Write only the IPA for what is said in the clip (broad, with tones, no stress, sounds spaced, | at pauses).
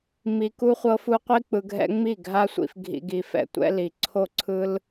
m i˧ k u˦ χʷ ɤ˦ f u˦ qʷ i˦ k͡p ɯ˧ ɡʱ ɛ̰˦ ŋ͡m i˦˨ ɡʱ a˦ sʷ ḭ˧ f ɡʱ ḭ˧ ɡ i˧ f ɛ̰˧ tʷ ɛ̰˦ l i˧ ǀʰ o˦˨ ǀʰ ɯ˦ l